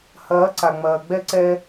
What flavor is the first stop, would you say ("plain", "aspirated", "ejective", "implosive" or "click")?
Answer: click